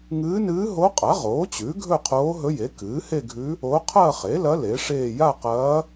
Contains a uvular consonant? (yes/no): yes